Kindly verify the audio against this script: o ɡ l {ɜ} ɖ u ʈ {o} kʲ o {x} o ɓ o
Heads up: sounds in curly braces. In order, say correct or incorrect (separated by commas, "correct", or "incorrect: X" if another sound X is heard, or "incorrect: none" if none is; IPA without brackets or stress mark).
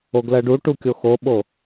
correct, incorrect: u, correct